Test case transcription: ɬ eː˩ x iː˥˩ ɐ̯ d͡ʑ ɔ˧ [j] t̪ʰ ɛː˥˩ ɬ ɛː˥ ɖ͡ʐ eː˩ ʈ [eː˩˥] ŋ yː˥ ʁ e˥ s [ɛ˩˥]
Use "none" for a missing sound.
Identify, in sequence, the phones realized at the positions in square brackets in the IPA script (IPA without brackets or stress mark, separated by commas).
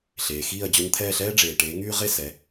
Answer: ɲ, eː˩˥, ɛ˩˥